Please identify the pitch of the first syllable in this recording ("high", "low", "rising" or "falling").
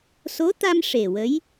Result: rising